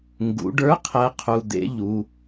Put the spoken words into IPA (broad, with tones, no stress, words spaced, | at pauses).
ŋɡṵ˩˧ɖə˞˧˥ qʰɜ˧˥qʰu˩˧˩d̪ḛ˧˥ ʎu˩˧